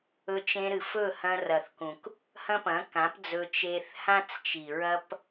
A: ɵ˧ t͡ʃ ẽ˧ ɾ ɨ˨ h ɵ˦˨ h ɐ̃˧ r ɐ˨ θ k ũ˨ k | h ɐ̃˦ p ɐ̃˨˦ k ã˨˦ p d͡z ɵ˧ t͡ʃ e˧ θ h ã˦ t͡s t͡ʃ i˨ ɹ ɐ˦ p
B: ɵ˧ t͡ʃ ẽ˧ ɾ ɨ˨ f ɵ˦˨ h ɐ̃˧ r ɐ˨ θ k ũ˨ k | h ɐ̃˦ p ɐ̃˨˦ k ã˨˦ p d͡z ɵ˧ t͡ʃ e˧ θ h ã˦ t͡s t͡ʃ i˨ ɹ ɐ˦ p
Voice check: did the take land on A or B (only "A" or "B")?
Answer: B